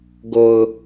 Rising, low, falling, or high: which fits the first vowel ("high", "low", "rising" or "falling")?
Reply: low